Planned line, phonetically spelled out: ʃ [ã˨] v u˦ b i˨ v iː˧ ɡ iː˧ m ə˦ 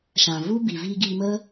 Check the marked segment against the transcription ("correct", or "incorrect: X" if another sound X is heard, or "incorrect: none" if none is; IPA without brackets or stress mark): correct